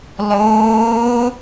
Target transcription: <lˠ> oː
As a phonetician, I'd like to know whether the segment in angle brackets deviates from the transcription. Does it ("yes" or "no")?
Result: no